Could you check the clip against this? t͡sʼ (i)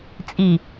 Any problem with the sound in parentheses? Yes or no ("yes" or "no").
no